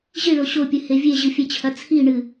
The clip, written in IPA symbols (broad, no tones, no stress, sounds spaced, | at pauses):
ʑ i ɭ o ɕ o pʲ ɨ h e vʲ e ʑ ɨ fʲ e t͡ɕʰ ɐ t͡sʰ i ɳ ɨ